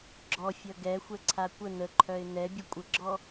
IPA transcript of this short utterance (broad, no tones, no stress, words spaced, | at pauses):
ɡ͡ǁɔfʲʌ ɡɛxʷɛǀʰa kʷə nəǃʰœɪ̯ nɛbʲə kʷʼəɡ͡ǁɔ